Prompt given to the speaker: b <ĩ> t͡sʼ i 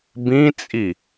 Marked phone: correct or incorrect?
correct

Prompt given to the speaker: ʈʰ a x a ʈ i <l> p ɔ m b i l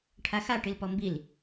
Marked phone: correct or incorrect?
correct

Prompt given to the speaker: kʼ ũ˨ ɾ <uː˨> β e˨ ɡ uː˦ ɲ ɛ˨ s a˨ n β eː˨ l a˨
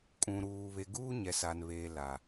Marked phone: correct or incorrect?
correct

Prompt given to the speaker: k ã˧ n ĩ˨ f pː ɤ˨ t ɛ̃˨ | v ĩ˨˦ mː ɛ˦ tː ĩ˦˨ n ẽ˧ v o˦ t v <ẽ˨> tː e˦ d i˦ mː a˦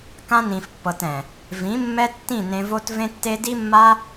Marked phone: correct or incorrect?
incorrect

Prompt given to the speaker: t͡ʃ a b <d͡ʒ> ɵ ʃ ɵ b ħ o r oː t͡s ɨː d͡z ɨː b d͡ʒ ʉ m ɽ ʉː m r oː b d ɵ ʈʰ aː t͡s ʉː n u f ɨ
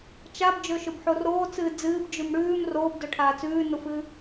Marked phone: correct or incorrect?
correct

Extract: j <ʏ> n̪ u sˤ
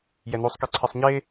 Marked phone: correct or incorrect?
incorrect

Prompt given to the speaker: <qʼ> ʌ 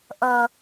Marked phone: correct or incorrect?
incorrect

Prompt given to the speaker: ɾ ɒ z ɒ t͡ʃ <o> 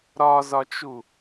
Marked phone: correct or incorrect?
incorrect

